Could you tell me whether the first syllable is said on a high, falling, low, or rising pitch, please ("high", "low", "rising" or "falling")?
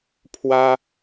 high